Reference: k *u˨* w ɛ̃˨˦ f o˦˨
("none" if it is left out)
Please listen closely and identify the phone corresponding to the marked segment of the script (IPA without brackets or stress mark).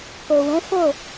o˨